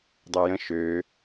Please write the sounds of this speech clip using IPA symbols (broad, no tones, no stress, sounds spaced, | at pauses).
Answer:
dˤ e j ə̃ ʃ ø